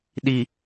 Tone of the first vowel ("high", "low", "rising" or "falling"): low